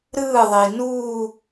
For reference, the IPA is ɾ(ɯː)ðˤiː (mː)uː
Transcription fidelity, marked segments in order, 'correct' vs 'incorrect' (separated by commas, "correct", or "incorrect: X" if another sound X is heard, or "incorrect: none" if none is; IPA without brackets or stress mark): correct, incorrect: n